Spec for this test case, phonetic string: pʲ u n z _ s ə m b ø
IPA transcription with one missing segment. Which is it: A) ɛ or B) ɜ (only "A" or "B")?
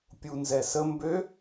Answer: A